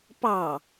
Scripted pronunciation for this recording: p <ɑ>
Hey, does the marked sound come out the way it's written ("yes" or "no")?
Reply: yes